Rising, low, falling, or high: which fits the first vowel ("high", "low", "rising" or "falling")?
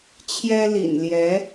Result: high